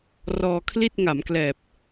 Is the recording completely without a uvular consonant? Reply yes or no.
yes